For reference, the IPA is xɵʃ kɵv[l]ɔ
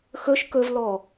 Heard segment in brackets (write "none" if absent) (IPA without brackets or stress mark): l